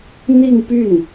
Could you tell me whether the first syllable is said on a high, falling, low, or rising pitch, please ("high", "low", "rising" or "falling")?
falling